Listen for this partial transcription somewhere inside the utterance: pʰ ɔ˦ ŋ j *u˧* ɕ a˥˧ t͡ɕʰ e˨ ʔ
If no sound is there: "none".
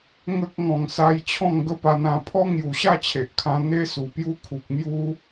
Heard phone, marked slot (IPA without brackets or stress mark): u˨˩